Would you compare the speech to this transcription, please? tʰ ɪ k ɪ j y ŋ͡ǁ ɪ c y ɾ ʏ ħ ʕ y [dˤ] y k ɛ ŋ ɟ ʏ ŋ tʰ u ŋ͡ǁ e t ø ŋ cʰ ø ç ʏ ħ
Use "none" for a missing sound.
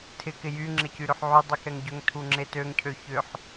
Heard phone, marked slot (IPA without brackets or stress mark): dˤ